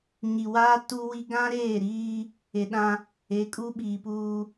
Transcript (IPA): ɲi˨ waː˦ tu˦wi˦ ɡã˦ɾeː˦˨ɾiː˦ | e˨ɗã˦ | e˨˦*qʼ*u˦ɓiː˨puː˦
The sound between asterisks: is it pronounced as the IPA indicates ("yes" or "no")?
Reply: no